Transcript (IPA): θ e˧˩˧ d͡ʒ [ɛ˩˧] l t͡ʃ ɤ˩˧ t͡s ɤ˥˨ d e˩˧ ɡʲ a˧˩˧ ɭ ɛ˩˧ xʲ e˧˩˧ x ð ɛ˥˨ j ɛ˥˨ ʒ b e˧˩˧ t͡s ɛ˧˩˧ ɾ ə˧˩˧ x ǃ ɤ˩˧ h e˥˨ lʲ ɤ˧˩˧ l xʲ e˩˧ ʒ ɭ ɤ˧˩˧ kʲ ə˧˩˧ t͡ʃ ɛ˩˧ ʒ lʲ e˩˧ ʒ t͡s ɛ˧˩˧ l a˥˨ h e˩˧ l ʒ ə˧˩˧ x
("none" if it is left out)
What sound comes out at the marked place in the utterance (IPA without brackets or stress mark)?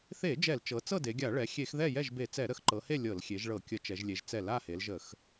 ɛ˧˩˧